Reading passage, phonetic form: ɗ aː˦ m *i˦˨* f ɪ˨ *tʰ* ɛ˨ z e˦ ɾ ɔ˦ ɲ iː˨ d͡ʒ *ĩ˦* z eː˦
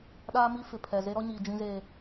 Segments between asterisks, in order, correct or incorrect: incorrect: i˦, incorrect: pʰ, correct

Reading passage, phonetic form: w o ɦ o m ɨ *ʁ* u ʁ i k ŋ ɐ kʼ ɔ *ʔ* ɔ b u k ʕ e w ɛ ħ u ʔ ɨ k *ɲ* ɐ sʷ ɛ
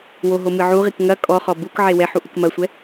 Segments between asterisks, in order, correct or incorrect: incorrect: ʕ, incorrect: χ, incorrect: m

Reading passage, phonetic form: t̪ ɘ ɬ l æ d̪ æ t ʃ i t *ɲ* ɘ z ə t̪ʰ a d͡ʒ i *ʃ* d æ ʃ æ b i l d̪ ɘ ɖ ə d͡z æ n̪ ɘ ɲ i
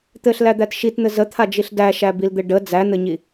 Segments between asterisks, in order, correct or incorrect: incorrect: n̪, incorrect: ɬ

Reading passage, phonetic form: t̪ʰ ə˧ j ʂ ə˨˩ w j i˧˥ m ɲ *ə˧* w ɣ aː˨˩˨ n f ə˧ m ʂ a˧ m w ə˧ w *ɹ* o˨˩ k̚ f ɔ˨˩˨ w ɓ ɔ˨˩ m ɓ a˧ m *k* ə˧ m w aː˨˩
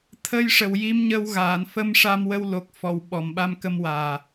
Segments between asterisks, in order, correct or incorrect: correct, incorrect: l, correct

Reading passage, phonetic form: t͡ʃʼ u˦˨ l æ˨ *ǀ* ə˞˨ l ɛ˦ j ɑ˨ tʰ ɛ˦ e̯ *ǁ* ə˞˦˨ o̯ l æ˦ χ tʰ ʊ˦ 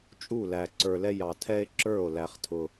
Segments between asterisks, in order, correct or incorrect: correct, correct

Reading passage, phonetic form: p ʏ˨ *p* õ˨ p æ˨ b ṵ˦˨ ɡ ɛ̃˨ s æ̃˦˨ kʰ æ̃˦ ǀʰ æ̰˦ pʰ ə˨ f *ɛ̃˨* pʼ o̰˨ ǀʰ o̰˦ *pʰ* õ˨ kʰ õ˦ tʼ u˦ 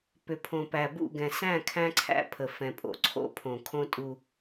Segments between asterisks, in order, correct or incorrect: incorrect: pʰ, correct, correct

